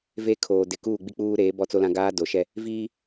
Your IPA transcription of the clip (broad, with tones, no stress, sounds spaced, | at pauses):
v e˦ kʰ oː˨ d ɪ˨ k uː˦˨ ɡ͡b i˦ k͡p uː˦ ɾ eː˨˦ b ɔ˦ t͡s o˦ l ã˦ ɡ aː˦ d o˨ ʃ ɛ˦ | v iː˦